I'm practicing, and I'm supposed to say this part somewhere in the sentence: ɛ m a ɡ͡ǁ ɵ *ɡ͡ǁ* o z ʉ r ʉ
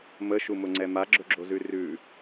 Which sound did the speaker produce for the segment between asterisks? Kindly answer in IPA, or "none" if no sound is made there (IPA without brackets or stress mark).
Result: ɡ͡ǁ